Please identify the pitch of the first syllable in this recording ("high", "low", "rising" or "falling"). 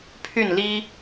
falling